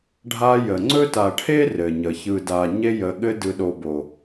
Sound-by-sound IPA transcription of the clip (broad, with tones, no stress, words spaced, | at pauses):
ɖʱa˦jə˨ ŋ͡ǀɵ˥ta˨ ʈʰe˥rɘ˩ɲə˩çɯ˨ da˨ɲe˦jə˨ ɠɘ˦dɯ˨ ɗo˨bo˩